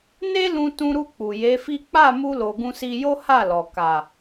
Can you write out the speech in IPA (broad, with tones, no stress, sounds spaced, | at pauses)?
n e˦ l ũ˧ t ũ˧ ɾ u˧ k͡p u˨ j e˨˦ f i˦ k͡p a˦˨ m u˧ l o˨ ɡ ũ˧ s i˧ j o˦ h a˦˨ l ɔ˨ k a˨